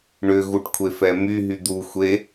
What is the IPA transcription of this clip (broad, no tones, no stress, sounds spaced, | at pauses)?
ɳ ʏ ɣ u ʈ kʷʰ e f ɛ m y ɦ y d̪ u xʷ e